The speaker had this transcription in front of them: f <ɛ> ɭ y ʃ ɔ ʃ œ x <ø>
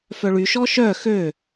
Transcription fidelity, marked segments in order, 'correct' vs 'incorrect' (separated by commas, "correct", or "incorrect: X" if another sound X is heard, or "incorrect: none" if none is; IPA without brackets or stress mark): incorrect: œ, correct